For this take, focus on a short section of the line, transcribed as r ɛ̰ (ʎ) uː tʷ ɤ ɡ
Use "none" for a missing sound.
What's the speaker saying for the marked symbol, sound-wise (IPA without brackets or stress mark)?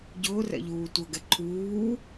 ʎ